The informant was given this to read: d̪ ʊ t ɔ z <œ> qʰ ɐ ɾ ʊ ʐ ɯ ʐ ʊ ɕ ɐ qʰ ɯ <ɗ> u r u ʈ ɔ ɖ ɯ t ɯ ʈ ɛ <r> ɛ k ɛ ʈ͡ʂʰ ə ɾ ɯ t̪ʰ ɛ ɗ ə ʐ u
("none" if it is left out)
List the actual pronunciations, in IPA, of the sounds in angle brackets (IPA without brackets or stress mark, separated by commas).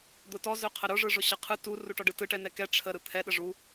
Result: œ, t, n